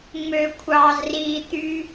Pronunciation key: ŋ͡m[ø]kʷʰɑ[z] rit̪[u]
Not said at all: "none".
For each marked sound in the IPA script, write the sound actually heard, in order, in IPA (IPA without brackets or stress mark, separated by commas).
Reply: ø, z, y